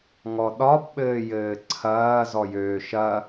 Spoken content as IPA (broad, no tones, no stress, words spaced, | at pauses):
ŋɔɗɒbɓɘːjɘː ǀʰɐːzɔjøː ʃɐ